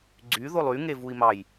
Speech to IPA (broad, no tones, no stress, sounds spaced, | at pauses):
ɡ͡ǀ y ð o lˠ y ŋ e v u i̯ m ɑ j